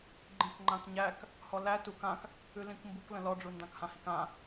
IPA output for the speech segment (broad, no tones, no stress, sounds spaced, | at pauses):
ɡ͡ǃ ĩ k ŋ͡ǃ ã k ɲ æ k | h ɔ l æ t u k ã k | ʉ l ĩ k m b u k l ə̃ l ɔ ɖ͡ʐ u n d ɑ̃ k h ã h i k ã